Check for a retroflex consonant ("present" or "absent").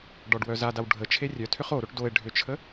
present